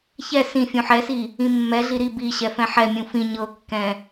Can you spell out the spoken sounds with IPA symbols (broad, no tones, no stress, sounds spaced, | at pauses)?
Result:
ç ɛ s ĩ fʲ ũ ħ ɛ s i | ĩ mː ɛ ɮ i ɾ i b i ɕ ɛ f ɛ̃ ħ ɛ mʲ ũ f ĩ ɲ ɤ kː ɛ̃